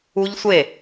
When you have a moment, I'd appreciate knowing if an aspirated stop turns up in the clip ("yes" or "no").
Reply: no